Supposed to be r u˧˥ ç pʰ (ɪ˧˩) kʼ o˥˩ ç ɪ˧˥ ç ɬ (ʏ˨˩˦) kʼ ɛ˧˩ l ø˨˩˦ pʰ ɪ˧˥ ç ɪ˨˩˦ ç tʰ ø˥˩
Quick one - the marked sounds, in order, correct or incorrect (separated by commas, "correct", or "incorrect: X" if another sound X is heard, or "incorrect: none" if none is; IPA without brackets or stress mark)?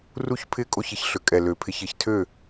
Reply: incorrect: ɪ˧˥, correct